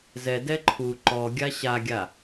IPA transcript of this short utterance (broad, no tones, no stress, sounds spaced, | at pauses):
z ɛ d ɛ ǃʰ u ǃ ɔ ɡʲ a ɕ a ɡʲ a